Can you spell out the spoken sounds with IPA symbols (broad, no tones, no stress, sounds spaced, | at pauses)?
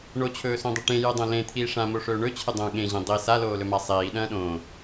ɳ o t͡ɕʰ ɵː s õ dˤ ɐ ʈ ẽ j ɨ dˤ õ l ẽ t̪ʰ iː ʂ ã m o ʂ ɵː ɳ ɵ t͡ɕʰ ɨ dˤ õ ɠ ẽ ʑ ẽ dˤ i s a l oː l ɵ m a sˤ iː ɗ ɐ̃ː ɗ õː